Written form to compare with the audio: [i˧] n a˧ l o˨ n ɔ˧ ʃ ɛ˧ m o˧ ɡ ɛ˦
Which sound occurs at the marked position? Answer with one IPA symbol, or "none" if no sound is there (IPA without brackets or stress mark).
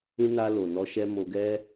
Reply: ĩ˧